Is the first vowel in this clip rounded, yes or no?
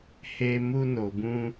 no